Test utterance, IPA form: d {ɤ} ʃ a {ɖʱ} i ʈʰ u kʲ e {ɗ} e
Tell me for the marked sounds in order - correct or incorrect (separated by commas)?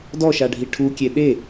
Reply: incorrect, correct, correct